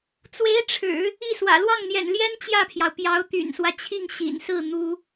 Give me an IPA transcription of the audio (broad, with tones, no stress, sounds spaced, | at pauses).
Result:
t͡s w e˧˥ ɪ̯ ʈ͡ʂʰ ɻ̩˨˩˦ | i˥˩ s w ä̰˨˩ l w ɑ˥˩ ŋ n̪ j ɛ̰˨˩ n l j ɛ˥ n t͡ɕ j ä˥˩ pʰ j ɑ˩ ʊ̯ p j ɑ˧˥ ʊ̯ t̪ y̰˨˩ n s w ä˦ t͡ɕʰ i˥˩ ŋ ɕ ḭ˨˩ n s ɹ̩˥˩ n̪ u˥